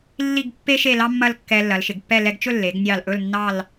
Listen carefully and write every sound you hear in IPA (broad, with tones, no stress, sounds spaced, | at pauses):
lː i˥˧ ɡ pː e˥ ʃ e˥˧ l ɑ˥ mː ɐ˥˧ l kː ɛ˧ lː ɐ˩˧ l ʃ ɪ˩˧ ɡ pː ɛ˥˧ l ɛ˧ ɡ t͡ʃ ɵ˥˧ lː e˩˧ ɡ nʲ ɑ˧˩ l ʔ ɵ˥˧ l nː ɑ˥˧ l